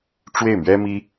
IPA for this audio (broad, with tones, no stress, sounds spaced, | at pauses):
ʈ͡ʂ w e˥˩ ɪ̯ m ɥ ɛ˥ m i˥